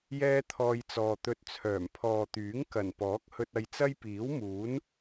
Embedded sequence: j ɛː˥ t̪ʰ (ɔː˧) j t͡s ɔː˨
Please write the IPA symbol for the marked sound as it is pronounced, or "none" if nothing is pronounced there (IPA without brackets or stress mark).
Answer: ɔː˧